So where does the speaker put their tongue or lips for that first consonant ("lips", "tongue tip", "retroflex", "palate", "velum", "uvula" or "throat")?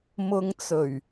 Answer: lips